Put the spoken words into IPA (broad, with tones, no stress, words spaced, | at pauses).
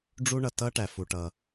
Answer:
ɖ͡ʐu˥ɳʌ˩ tʌ˥ʈæ˩fu˩ʈʌ˩